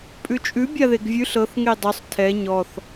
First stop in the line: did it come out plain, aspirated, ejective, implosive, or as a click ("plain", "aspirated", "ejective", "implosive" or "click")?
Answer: ejective